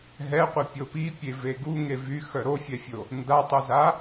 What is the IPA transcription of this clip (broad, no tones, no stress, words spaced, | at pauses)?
ɦɛqʷipʲo pipʲeve ɡuŋe vyxœ ɾofʲɛfʲo | ndatˤuza